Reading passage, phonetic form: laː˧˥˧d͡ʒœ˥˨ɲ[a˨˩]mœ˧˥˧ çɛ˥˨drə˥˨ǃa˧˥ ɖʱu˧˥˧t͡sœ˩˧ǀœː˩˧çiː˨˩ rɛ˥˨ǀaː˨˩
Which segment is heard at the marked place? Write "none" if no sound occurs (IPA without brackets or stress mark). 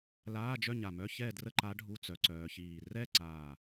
a˨˩